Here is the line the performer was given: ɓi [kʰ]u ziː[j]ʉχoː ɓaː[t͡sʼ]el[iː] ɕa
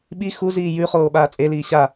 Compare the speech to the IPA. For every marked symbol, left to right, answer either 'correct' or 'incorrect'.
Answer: incorrect, correct, correct, correct

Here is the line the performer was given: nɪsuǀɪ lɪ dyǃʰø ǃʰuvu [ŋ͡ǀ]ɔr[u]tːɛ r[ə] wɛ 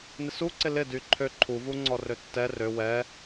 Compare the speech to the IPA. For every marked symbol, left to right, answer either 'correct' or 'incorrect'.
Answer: correct, incorrect, incorrect

